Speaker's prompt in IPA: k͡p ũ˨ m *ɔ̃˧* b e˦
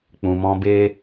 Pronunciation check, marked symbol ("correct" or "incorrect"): correct